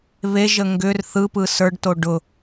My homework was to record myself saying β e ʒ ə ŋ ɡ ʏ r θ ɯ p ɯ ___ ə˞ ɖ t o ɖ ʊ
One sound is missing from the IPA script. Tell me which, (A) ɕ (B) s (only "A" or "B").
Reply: B